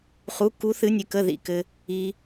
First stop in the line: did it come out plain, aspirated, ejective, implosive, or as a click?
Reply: plain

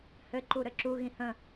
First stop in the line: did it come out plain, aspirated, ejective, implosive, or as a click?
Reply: click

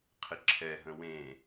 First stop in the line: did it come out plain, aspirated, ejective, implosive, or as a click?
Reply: aspirated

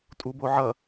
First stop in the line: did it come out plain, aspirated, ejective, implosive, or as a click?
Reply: ejective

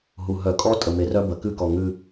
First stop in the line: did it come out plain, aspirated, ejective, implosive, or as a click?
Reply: ejective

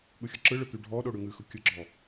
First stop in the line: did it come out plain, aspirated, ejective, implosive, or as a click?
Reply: implosive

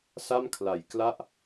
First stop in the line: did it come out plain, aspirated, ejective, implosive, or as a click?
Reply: aspirated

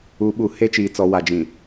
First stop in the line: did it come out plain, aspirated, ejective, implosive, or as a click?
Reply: implosive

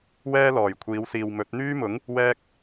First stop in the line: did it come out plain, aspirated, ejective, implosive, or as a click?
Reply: aspirated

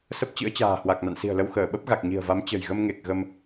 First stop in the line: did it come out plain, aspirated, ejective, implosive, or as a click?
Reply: plain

